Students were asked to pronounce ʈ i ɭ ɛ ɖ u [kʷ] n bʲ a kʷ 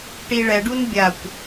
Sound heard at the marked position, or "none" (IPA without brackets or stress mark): none